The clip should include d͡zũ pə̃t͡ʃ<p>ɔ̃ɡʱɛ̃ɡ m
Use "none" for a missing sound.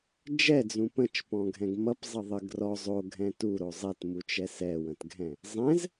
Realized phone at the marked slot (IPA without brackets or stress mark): p